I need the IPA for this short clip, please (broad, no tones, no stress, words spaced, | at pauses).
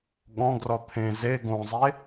ɠɔ̃ɡrɔ t̪ʰẽ ze ɡõzˤe